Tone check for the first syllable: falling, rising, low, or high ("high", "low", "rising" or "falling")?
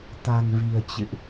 low